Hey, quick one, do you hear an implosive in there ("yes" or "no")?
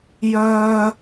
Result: no